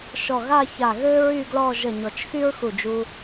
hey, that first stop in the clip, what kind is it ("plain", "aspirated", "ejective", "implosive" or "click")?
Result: plain